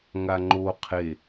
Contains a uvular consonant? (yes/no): yes